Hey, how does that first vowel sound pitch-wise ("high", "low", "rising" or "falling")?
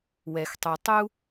low